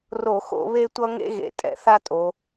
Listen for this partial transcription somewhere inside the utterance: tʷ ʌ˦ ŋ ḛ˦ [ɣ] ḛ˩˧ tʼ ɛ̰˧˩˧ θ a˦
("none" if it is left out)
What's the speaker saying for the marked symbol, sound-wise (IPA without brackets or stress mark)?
ɣ